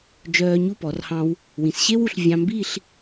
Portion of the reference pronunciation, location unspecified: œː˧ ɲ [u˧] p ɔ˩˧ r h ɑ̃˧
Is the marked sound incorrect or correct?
incorrect